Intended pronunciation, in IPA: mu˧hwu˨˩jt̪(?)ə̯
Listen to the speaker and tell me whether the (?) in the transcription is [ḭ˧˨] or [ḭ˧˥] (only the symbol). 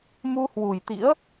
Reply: ḭ˧˥